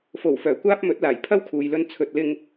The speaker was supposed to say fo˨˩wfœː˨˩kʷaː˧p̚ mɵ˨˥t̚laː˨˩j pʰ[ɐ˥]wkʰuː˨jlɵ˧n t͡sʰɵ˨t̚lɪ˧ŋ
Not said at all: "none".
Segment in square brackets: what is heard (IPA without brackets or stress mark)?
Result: ɐ˥